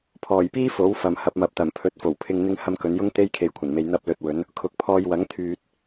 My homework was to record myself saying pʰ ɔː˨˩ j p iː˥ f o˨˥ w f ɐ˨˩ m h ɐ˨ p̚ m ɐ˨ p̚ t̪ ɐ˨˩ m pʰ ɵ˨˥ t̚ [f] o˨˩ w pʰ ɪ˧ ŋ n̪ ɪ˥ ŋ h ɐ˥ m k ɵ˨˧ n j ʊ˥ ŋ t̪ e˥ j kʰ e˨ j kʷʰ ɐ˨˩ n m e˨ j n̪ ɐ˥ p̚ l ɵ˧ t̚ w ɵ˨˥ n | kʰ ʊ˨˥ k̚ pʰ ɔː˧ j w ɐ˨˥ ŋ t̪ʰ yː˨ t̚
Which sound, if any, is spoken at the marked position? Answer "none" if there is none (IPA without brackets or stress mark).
f